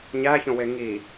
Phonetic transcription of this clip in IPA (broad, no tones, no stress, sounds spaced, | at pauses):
ɲ æ ç õ w e ŋ i